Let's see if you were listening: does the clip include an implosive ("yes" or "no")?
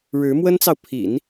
no